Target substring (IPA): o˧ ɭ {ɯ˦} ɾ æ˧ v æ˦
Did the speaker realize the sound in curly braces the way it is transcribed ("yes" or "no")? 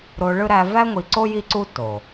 yes